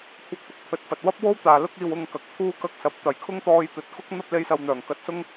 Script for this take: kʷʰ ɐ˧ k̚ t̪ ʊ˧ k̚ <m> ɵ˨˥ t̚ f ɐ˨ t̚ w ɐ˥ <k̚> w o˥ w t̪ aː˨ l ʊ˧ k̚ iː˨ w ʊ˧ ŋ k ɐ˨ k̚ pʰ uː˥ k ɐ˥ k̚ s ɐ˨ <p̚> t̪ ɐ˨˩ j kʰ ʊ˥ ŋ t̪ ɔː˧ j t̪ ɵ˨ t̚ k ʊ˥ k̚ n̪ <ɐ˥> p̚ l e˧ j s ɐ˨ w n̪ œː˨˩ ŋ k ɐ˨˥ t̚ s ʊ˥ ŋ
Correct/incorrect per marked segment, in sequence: incorrect: pʰ, incorrect: p̚, correct, correct

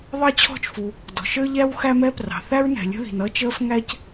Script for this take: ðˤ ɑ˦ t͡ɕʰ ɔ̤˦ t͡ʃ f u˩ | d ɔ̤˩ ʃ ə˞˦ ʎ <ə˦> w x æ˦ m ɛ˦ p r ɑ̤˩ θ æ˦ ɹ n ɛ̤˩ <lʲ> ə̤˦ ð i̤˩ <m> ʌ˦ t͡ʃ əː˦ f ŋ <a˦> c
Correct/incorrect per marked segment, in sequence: incorrect: æ˦, correct, incorrect: n, incorrect: æ˦

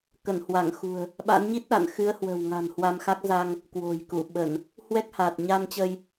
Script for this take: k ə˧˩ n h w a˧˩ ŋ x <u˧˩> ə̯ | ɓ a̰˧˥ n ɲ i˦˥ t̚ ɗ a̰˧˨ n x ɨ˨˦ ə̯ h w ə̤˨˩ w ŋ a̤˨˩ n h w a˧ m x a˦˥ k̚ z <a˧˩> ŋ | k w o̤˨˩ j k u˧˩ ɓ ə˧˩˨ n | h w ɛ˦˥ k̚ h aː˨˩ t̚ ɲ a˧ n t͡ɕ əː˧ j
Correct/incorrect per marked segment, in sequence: incorrect: ṳ˨˩, incorrect: a˧

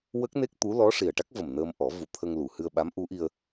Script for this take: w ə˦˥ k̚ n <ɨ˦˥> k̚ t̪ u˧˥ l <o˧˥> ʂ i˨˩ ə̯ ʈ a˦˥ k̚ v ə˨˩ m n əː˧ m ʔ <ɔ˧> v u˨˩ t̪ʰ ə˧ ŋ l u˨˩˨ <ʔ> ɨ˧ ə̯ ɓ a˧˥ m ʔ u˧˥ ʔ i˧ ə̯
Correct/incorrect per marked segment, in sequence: incorrect: e˦˥, incorrect: ɔ˧˥, incorrect: ɔ˨˩˦, incorrect: h

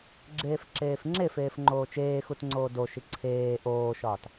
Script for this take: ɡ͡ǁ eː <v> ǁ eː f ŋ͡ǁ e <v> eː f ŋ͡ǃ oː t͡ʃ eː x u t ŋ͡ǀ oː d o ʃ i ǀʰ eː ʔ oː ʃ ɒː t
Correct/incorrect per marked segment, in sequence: incorrect: f, incorrect: f

